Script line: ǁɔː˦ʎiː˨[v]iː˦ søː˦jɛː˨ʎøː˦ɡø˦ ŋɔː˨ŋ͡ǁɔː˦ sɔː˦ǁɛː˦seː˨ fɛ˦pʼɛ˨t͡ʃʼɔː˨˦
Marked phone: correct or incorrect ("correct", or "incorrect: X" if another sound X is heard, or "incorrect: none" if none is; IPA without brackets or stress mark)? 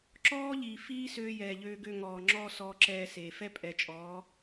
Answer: incorrect: f